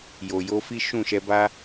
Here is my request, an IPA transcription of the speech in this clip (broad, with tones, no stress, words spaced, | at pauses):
jo˨jo˨˦fi˦ ʃũ˦˨ʃɛ˧ba˦